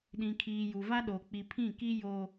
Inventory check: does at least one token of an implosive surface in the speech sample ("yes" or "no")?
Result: yes